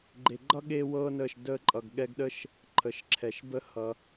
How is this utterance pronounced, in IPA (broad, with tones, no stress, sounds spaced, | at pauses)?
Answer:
ɡ͡ǃ e˨ ɡ͡ǃ ʌ˦ ɠ e˦ w ɤ˦ n ə˦˨ ʃ d ə˧ ǃʼ ʌ˨ ɡ ɠ ɛ˧ ɡ ɗ ə˦ ʃ | ǃʰ ə˨ ʃ ǁʰ ɛ˨ ʃ b ə˦ h ʌ˧